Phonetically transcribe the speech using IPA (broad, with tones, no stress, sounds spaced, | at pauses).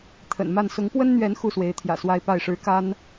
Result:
t̪ʰ ə̰˨˩ n m a˥˨ n s ʊ˨˦ ŋ p w ə˦ n n̪ ɥ ɛ˨˦ n x u˥˨ s w e˨˦ ɪ̯ t̪ʰ j ä̰˨˩ s w a˦ ɪ̯ p a˥˨ ɪ̯ ʂ ɻ̩˦ k a˦ n